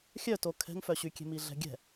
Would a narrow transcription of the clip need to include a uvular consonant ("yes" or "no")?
no